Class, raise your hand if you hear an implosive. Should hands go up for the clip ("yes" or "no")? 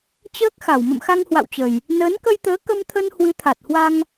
no